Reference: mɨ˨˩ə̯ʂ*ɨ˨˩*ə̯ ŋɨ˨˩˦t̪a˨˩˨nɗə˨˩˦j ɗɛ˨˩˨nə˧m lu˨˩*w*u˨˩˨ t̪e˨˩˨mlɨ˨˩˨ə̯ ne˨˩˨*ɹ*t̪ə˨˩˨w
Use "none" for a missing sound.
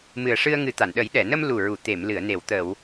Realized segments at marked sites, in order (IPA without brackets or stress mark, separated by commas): ɨ˧, ɹ, w